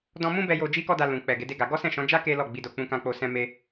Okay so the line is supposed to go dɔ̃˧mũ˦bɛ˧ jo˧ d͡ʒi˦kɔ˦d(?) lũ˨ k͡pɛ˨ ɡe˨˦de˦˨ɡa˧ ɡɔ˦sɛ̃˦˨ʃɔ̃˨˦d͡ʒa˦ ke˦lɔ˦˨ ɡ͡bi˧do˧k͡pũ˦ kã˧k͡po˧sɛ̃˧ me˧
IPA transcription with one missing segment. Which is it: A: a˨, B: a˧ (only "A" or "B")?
B